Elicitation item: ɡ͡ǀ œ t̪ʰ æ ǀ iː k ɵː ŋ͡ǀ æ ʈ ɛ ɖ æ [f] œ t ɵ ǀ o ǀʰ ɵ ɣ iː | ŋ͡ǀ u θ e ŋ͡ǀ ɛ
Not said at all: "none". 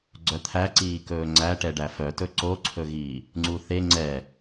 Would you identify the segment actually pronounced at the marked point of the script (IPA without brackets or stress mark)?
f